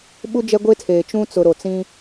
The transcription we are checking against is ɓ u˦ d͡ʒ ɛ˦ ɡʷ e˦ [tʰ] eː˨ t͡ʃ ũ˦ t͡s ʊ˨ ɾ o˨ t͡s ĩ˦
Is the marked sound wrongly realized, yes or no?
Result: no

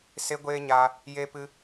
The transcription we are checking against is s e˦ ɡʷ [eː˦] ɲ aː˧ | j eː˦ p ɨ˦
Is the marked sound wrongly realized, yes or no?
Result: no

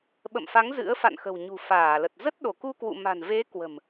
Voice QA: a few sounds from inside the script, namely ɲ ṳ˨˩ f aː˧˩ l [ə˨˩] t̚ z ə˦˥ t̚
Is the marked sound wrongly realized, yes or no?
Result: no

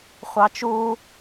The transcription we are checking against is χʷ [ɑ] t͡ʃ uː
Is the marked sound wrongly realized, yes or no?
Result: no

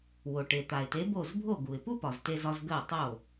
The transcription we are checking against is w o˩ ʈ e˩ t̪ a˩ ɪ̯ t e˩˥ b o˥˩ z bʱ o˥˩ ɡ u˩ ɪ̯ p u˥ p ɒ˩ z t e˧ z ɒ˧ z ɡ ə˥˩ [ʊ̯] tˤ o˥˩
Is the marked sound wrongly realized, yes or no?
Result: no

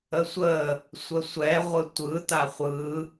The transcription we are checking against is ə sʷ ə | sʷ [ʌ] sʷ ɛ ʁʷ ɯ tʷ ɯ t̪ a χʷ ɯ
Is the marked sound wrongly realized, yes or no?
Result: yes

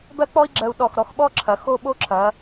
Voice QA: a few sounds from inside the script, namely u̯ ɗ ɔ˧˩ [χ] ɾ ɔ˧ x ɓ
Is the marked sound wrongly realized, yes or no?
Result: yes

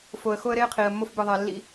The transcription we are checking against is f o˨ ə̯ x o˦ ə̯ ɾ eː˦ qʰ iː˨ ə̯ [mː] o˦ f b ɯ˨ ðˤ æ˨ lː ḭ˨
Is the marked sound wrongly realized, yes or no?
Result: no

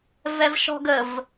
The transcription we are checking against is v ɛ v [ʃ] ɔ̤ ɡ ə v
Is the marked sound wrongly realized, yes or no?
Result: no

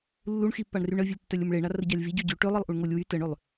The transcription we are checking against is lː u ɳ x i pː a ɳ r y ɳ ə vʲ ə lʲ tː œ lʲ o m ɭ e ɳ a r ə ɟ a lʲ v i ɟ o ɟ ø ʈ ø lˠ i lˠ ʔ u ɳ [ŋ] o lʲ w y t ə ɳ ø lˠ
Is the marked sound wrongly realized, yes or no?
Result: no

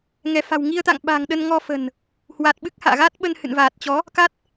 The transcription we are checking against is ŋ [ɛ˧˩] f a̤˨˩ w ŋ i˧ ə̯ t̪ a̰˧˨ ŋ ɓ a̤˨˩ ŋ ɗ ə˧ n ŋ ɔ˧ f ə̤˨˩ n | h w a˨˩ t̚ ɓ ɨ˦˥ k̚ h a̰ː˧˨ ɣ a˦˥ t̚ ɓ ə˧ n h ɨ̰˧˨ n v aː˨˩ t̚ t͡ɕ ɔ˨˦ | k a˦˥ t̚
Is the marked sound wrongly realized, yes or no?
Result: no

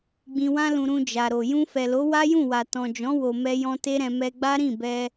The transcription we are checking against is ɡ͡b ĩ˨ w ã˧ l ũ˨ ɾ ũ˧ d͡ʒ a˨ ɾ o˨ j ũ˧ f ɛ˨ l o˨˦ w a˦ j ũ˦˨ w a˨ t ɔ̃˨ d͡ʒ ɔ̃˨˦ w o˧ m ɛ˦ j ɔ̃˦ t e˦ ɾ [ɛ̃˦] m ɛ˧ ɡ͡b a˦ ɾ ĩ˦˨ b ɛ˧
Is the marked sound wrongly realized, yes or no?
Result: yes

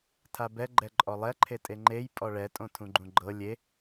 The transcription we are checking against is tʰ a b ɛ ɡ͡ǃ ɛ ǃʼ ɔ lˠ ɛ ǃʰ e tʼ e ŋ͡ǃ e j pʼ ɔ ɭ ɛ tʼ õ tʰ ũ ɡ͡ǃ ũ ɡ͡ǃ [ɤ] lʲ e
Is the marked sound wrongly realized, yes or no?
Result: no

